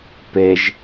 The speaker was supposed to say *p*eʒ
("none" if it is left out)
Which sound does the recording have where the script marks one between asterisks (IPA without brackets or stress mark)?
p